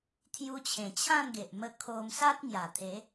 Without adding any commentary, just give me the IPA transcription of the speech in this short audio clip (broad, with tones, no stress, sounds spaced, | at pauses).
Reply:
t̪ʰ j u˧ t͡ɕʰ ẽ˨˩ t͡ɕʰ ã˥˧ n ɡ e˨ ʔ m ə˧ kʰ o˧ m s a˦ t̚ ŋ j a˨˩ t̪ʰ e˨˦